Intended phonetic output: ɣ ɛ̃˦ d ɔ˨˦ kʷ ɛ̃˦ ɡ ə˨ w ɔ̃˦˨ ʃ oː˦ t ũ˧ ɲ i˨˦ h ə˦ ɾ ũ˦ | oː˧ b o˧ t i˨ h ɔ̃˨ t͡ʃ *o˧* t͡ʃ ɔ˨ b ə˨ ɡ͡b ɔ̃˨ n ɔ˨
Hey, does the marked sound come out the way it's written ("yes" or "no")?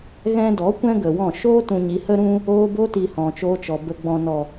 no